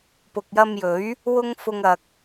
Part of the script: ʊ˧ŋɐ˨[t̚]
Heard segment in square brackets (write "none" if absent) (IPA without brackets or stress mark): k̚